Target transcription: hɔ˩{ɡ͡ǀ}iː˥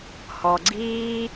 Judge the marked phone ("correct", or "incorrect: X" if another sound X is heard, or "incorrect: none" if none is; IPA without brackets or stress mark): correct